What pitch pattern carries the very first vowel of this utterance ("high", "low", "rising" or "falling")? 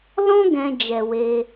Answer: high